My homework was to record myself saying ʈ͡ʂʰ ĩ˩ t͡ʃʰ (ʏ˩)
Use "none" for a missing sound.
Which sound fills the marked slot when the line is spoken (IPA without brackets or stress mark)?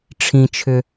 ʏ˩